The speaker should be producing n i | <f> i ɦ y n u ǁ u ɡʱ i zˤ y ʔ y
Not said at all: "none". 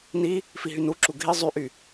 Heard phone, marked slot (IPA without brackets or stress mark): f